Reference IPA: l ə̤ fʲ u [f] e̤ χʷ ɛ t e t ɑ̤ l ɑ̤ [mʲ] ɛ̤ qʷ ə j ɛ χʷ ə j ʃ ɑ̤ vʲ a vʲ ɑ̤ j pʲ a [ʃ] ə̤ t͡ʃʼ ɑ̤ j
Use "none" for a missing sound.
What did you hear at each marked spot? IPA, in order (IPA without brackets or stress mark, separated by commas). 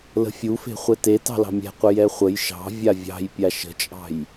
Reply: f, mʲ, ʃ